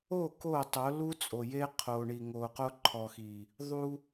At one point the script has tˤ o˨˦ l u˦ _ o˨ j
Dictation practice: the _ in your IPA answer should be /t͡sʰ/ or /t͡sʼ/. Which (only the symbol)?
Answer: t͡sʼ